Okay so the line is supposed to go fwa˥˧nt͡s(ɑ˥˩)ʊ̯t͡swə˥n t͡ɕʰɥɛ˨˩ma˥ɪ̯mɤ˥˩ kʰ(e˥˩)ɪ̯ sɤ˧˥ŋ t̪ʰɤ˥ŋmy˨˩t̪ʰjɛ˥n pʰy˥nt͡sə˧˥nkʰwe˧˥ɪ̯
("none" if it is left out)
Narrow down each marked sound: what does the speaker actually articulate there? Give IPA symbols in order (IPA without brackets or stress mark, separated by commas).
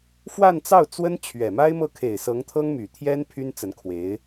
ɑ˥˩, e˨˩